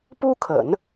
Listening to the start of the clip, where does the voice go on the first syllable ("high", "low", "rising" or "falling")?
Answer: high